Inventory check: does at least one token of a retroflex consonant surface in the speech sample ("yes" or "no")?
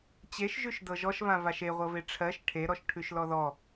yes